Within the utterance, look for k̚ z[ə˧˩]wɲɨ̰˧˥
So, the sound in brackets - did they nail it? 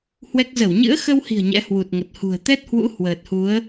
yes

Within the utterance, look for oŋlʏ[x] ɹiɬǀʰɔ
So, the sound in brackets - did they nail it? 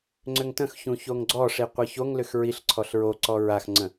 yes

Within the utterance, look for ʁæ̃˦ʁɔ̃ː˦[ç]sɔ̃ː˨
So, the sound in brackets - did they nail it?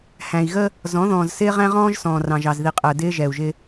no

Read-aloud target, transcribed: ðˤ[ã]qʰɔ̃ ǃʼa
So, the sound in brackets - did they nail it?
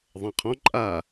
yes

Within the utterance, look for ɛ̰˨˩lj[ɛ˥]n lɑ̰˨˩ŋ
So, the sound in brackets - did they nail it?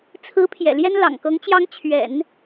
yes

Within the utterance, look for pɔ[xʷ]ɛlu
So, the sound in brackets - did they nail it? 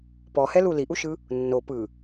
no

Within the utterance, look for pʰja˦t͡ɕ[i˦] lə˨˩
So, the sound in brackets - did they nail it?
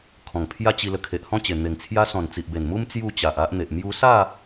no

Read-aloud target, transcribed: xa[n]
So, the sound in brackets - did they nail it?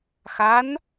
yes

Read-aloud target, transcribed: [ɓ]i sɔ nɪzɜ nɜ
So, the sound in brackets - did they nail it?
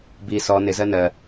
no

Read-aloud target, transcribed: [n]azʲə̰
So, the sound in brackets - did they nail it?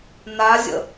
yes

